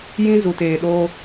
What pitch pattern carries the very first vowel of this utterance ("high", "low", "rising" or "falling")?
high